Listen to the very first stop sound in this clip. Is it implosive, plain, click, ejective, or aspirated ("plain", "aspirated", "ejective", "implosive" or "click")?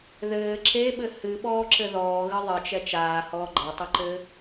click